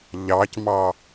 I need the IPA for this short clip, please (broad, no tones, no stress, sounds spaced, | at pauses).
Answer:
ʎ ɑ c m ɑ